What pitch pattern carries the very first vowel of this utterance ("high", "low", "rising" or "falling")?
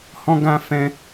high